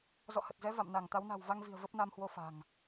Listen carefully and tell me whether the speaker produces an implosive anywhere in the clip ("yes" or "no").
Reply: no